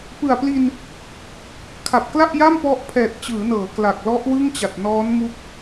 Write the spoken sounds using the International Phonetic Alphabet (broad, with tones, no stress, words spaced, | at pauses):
pɯ˨˩a̯pli˧n | kʰa˨˩p̚kla˥˩ʔja˥˩mpɔ˦˥ʔ pʰɛː˨˩t̚t͡ɕɯː˩˦nɤː˩˦ kla˨˩k̚lɔ˦˥ʔwɯ˥˩ŋ t͡ɕa˨˩t̚nɔː˦˥n mu˦˥k̚